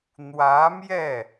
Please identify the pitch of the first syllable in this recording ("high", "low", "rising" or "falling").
rising